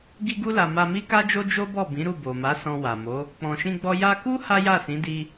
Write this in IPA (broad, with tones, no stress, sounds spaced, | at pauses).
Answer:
ɡ i˧ ɡ u˧ l a˨ m a˧ m i˦ k a˦ d͡ʒ o˦ d͡ʒ o˦ b ɔ˦˨ b ĩ˨˦ ɾ u˦˨ b o˨ m a˨˦ s ɔ̃˧ w a˨ m o˨˦ | k͡p ɔ̃˨ ʃ ĩ˧ ɡ͡b ɔ˧ j a˧ k u˦ h a˦ j a˦˨ s ĩ˨˦ d i˧